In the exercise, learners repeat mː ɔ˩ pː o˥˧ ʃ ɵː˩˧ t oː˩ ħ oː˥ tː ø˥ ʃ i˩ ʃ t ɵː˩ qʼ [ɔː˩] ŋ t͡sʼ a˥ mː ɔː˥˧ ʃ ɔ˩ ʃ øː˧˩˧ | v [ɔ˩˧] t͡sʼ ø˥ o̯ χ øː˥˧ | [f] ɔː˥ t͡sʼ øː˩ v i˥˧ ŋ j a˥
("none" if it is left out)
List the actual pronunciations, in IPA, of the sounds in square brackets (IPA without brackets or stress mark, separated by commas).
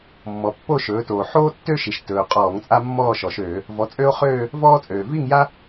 ɔː˧˩˧, ɔ˩˧, v